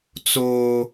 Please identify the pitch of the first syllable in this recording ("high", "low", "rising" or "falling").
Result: high